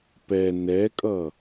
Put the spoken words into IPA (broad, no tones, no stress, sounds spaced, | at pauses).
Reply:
p ɛ n ɛ kʼ ʌ